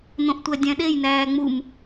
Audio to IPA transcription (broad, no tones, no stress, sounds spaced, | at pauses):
n̪ õ ʔ tʷ æ dʲ æ̃ ɗ e j n̪ æː ŋ͡m u m